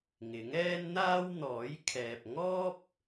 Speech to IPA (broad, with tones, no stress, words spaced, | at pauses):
ŋɪ˨˥ŋɛː˥nn̪aː˥w n̪ɔː˨˥jkʰɛː˨p̚ ŋɔː˥p̚